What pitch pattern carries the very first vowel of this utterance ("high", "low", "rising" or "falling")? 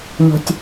low